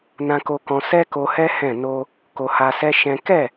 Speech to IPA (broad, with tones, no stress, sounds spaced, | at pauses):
n ã˧ k o˧ k ɔ̃˧ s ɛ˦ k o˧ h ɛ˦ h ɛ̃˦˨ n o˧ | k o˧ h a˧ s ɛ˦ ʃ ɛ̃˦ k ɛ˦˨